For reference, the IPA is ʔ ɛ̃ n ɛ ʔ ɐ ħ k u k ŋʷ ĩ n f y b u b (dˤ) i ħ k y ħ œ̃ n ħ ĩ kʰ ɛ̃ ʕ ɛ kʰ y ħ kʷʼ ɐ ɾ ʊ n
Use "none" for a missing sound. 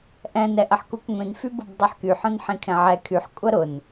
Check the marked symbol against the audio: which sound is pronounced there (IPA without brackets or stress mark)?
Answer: dˤ